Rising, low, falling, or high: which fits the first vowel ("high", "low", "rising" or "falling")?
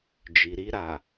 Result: low